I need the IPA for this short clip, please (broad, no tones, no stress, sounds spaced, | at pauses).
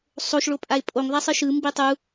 sˤ o ʃ ɭ o pʼ a ɪ̯ pʼ o ŋ ðˤ a sˤ ɯ ʃ ɯ m b i tˤ u